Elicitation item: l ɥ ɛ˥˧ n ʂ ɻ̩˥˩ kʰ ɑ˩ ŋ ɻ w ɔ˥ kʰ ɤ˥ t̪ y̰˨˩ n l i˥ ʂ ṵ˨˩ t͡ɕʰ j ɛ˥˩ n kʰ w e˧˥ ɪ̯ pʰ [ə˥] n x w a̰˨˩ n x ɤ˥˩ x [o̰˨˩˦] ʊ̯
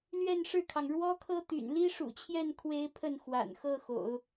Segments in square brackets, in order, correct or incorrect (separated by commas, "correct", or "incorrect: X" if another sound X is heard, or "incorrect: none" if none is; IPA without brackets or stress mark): incorrect: ə˥˩, correct